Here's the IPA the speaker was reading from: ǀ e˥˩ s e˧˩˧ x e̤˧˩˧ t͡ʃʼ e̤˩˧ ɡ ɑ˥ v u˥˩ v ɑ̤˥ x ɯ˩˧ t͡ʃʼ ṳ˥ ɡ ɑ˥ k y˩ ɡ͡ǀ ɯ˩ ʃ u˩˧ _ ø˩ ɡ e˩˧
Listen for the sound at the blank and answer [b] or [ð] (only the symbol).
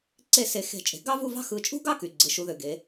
ð